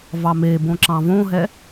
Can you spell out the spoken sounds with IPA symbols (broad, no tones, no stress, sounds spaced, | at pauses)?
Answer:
v ɑ m e b õ ǁ ɑ̃ v õ ɦ ɛ